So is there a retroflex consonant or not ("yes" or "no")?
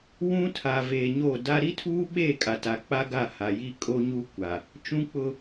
no